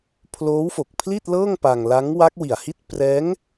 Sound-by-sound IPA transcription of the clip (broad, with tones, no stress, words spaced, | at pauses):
pʰloː˦˥wfo˨˩k̚pʰli˥˩t̚ lɤː˥˩ŋpa˧ŋla˦˥ŋ wa˦˥k̚wi˨˩a̯hi˥˩t̚ prɛː˦˥ŋ